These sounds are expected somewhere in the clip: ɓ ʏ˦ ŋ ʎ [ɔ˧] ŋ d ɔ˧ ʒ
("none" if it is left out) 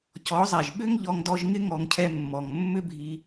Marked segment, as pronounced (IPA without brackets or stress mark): ɔ˧